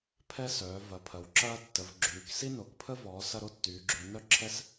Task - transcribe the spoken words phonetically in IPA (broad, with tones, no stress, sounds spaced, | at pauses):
pʰ ɛ˦ s œː˩˧ v ɐ˩˧ pʰ ɐ˩˧ w ǁ ɐː˦ tː ə˩˧ v ɡ͡ǁ yː˩˧ k s i˦ n o˩˧ k pʰ ə˦ v ɔː˩˧ s ɐ˦ ɾ o˦ tː yː˩˧ ɡ͡ǁ y˩˧ n œ˦ ǁʰ ɛ˦ s